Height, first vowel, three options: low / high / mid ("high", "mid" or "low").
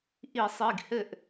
high